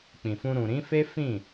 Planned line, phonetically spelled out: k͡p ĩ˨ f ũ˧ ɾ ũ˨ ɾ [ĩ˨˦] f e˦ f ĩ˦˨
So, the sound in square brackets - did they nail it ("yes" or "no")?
yes